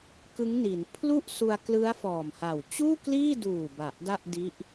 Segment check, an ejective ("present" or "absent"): absent